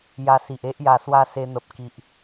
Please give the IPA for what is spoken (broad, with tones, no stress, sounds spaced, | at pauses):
j a˧ s i˨ ʔ e˦ ʔ j a˨˩ s w a˧ s e˧ n̪ ə˨ p̚ k i˨ ʔ